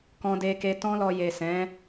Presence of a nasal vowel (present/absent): present